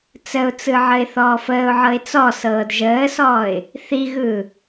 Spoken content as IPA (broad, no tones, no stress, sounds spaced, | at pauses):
t͡s ə ʊ̯ t͡s ɯ ʕ ə ɪ̯ θ ɔː f əː ʊ̯ ʕ ɤ ɪ̯ t͡s ɔ s ɤː d ʒ əː s ɔː ɪ̯ | θ i ɣ ɯː